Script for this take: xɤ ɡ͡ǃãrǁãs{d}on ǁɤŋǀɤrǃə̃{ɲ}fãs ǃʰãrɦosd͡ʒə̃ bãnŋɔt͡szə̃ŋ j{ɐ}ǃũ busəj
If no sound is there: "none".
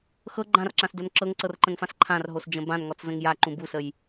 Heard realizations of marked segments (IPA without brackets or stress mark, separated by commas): d, ŋ, a